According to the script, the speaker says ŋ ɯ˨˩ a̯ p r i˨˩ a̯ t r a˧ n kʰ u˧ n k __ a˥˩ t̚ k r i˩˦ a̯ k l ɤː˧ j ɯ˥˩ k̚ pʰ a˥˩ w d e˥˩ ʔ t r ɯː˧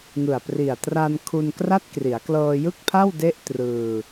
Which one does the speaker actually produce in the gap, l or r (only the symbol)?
r